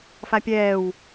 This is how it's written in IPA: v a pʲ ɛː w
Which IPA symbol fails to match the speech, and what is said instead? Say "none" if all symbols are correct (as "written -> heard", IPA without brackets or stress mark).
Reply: v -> f